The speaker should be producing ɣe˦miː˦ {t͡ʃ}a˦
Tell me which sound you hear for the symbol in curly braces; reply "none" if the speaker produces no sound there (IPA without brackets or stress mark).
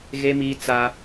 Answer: t͡s